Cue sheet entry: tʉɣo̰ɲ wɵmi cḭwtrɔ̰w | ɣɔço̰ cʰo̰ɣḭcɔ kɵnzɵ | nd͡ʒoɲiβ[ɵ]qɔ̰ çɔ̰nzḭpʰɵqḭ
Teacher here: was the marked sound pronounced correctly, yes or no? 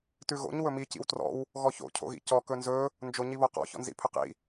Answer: no